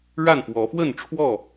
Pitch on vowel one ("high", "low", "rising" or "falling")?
falling